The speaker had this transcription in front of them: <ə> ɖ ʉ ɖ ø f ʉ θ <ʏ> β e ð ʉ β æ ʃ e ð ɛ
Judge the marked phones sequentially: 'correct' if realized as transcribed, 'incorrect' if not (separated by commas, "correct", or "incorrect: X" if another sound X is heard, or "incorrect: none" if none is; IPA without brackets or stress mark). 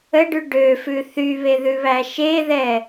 correct, incorrect: y